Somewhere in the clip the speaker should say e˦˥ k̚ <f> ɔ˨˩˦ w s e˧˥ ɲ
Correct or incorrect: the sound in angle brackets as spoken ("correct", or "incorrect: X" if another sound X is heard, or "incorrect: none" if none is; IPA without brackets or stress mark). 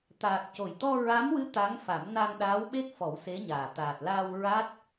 correct